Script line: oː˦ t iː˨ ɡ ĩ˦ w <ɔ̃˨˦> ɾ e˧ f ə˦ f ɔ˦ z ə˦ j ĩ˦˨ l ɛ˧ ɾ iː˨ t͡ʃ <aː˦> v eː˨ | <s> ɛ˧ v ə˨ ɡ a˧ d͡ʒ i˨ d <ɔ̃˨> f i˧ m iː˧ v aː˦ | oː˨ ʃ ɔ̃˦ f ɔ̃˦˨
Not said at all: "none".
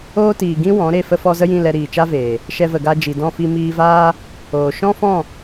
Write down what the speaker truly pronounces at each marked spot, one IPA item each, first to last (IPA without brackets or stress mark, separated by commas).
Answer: ɔ̃˨˦, a˦, ʃ, ɔ̃˦˨